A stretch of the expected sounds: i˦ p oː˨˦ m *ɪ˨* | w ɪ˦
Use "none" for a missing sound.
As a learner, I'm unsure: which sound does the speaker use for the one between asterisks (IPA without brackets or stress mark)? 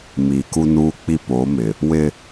ɪ˨